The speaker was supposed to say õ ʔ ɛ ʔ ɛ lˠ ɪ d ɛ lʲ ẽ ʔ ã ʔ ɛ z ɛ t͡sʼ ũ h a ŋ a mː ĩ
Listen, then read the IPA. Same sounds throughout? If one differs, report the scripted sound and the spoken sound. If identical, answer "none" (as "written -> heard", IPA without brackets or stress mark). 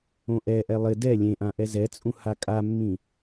ŋ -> kʼ